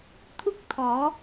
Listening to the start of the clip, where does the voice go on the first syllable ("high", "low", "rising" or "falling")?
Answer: high